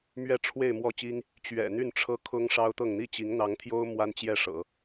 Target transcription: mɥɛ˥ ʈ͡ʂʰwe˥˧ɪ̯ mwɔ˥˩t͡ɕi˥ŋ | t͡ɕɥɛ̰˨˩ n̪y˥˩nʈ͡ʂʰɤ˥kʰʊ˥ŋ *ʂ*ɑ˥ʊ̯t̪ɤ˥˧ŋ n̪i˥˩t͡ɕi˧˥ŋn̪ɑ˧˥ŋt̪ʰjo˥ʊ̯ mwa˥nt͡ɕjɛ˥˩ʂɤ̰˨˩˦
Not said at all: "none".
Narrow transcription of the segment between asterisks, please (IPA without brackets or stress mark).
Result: ʂ